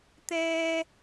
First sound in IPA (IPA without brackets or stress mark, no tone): t̪